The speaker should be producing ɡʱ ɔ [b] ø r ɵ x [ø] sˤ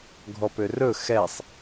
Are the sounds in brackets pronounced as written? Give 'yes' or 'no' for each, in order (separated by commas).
no, no